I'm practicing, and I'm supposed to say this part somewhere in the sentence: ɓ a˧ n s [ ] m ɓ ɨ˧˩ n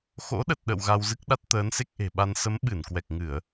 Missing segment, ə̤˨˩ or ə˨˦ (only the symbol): ə˨˦